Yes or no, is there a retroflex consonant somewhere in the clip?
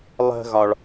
yes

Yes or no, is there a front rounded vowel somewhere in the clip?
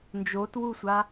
no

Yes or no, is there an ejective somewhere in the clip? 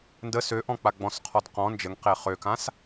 no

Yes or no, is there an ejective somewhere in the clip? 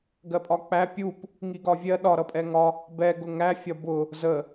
yes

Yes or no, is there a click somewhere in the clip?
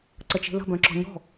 yes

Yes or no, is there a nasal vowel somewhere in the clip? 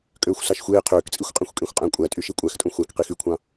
yes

